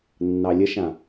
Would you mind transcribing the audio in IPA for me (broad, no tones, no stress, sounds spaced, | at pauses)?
nː ɑ lʲ ə ʃ ã